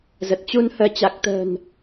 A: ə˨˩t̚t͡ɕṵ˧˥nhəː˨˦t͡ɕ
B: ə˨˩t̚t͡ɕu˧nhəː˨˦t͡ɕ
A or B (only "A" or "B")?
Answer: B